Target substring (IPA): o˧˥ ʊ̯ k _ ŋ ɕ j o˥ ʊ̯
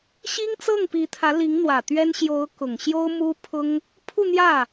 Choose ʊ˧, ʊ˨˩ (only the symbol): ʊ˨˩